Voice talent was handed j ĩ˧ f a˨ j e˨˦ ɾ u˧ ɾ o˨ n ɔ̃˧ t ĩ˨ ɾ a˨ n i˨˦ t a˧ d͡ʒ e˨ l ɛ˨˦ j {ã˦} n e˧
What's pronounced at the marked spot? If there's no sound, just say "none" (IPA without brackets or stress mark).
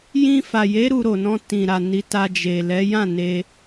ã˦˨